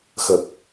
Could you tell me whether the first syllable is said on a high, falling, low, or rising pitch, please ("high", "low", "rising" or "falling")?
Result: low